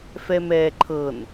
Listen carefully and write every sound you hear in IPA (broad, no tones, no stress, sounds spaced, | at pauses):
f ɛ m ɛː ǃʰ ɤ n